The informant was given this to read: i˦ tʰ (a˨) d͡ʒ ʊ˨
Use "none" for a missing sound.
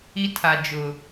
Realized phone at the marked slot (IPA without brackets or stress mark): a˨